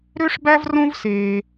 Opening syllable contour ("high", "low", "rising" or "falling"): high